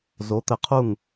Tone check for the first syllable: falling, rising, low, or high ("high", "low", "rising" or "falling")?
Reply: rising